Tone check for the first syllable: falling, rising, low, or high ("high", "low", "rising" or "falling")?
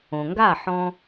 low